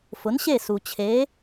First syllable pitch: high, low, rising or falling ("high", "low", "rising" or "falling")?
rising